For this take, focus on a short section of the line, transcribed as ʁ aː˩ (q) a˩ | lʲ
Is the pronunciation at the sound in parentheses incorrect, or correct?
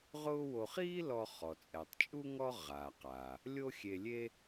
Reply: correct